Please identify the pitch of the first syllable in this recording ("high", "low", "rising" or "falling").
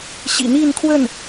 low